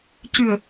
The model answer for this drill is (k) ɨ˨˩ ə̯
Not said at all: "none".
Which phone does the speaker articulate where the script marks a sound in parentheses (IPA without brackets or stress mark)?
c